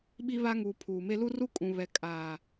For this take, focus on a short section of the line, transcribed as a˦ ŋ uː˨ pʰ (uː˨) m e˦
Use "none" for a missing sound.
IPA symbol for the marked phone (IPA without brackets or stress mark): uː˨